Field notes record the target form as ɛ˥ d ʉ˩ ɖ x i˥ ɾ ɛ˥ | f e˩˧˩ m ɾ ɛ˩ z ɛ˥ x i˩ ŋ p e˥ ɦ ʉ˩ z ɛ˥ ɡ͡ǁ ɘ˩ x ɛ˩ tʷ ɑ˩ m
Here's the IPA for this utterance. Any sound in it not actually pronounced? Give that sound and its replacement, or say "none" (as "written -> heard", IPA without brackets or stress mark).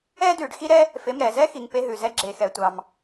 ɘ˩ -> e˩